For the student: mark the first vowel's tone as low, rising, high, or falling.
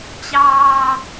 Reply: high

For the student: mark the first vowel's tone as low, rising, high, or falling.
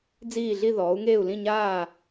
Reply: falling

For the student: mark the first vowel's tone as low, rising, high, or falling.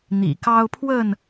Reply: low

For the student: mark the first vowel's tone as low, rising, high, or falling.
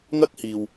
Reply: high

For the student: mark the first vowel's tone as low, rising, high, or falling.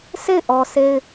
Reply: falling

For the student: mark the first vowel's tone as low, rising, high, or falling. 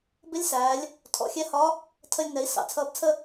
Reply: rising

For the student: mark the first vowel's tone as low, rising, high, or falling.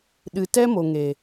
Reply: low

